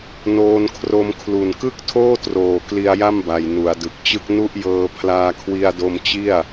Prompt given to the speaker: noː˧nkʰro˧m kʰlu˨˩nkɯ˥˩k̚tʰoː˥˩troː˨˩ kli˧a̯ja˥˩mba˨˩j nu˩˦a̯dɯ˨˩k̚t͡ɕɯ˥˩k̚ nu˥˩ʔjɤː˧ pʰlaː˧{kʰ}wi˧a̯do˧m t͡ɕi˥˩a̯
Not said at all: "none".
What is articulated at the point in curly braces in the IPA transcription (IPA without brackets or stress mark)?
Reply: kʰ